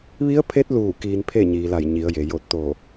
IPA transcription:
ʋi˧˥ə̯pʰe˧˥t̚luː˧˩ kiː˧npʰe˥˨ ɲiː˩ la˧˩jɲi˩˧ə̯je˩ jo˧˩t̚t̪o˧˩

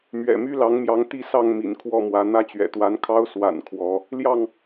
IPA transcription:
mɥɛ̰˨˩my˦ lɑ˨˦ŋmjɑ˨˦ŋt̪i˥˨sɑ˥˨ŋ mḭ˨˩nkʰwɔ˥˨mwä˨˦ n̪ä˥˨t͡ɕɥɛ̰˨˩t̪wa˨˦nkʰɑ˦ʊ̯ swa̰˨˩n kʰwɔ˨˦ | ljɑ˥˨ŋ

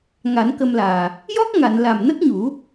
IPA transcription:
ŋa˨˩˦nkə˧mlaː˨˩ | jɔ˦˥k̚ŋa˨˩˨n la˨˩mnə˦˥k̚ɲu˨˩˦

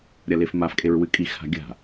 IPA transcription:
ɾʲɐlefmafkʼeɹ wɨkʼixha̤ ɡʲa̤

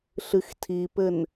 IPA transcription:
ɬɨxtʰipɘn

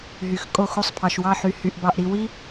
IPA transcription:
ɦy˨xkʼo˦˨xu˦sˤ pʰɑ˨ʃwɑ˦˨ħy˨ hy˨ʔbɑ˨ʔɾi˨ wi˦

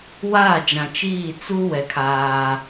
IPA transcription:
waː˦˨d͡ʒã˨t͡ʃiː˦˨ t͡su˦ wɛ˨kʰaː˦

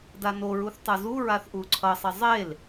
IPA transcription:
danoɹuθ tˤɯzuɹaθ ʔuǀʰʌsˤe zˤel

